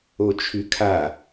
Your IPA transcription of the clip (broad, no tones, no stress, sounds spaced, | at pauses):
o t͡ʃʰ y kʰ a